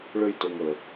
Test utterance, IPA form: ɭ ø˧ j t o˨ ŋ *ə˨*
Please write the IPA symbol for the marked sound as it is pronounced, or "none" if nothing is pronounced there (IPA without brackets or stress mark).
ə˨